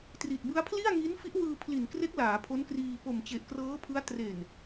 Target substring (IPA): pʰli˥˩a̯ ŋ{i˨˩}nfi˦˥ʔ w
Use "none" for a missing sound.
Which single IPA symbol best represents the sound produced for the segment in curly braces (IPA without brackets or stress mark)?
i˦˥